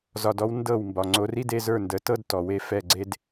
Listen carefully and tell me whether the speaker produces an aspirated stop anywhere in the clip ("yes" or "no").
no